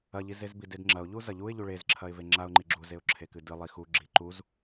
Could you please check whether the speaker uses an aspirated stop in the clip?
yes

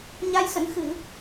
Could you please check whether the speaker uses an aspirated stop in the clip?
no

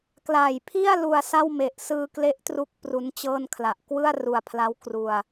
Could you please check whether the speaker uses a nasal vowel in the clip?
no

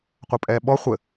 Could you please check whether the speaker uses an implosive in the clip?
yes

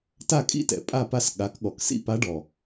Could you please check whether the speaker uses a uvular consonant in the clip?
no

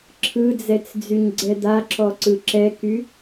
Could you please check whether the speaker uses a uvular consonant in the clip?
no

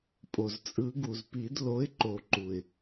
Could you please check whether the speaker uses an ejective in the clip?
yes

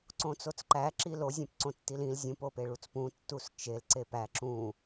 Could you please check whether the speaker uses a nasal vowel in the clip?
yes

